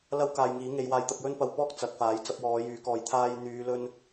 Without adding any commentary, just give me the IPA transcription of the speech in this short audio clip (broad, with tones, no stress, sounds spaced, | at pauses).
l ɐ˥ w k aː˨ j ŋ iː˨˥ ŋ e˧ j w aː˧ j t̪ ɐ˧ p̚ j ɵ˥ n p ɐ˧ w p ɔː˥ k̚ t͡s ɐ˨˥ k̚ f aː˨˥ j t͡s ɐ˧ p̚ w ɔː˨˧ j yː˨˥ k ɔː˨ j t̪ʰ aː˧ j n̪ yː˨˧ l ɵ˧ n